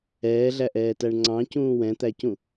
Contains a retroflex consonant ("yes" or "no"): yes